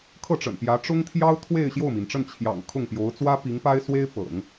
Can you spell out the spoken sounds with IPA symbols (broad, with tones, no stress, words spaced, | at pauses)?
kʰɤ˥˩ʈ͡ʂə̰˨˩npjä˧˥ ʈ͡ʂʊ˥ŋt̪ʰjɑ˥ʊ̯t̪ʰwe˥˧ɪ̯ ɕjo˥˩ʊ̯mi˩nʈ͡ʂə˥˩n t͡ɕʰjɑ̰˨˩ŋ kʰʊ˥˩ŋpjo˧˥ʊ̯ t͡swä˥pi˧˥ŋpa˥ɪ̯ swe˥ɪ̯ pɤ̰˨˩˦ŋ